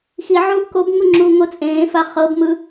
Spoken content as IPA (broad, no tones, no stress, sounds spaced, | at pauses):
x i ʕ uː ʔ k o b ŋ u ŋ͡ǁ uː ŋ o t͡sʼ ẽː f a χ ɤ b m ɯ